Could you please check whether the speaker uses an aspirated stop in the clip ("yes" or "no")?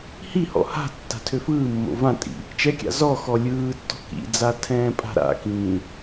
yes